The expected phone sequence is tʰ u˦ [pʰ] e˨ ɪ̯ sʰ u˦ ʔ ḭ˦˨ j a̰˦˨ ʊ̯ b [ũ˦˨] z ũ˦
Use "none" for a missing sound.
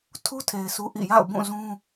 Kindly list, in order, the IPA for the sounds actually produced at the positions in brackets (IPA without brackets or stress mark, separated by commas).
tʰ, ũ˦˨